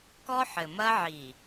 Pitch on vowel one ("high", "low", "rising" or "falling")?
high